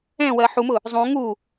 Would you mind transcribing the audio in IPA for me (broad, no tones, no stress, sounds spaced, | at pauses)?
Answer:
ɛ̃ w ɜ ħ u m ʊ | zˤ ũ ŋ u